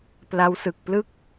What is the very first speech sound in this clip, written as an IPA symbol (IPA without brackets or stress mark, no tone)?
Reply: p